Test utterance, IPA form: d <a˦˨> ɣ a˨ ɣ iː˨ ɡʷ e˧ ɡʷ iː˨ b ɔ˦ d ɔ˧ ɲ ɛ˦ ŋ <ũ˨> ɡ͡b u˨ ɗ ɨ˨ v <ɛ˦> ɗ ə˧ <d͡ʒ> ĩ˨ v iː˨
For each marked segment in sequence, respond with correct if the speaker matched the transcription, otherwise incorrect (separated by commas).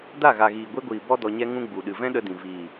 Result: correct, incorrect, incorrect, incorrect